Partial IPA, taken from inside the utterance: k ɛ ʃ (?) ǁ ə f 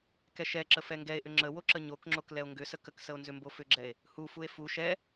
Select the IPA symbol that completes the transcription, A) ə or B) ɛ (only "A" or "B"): B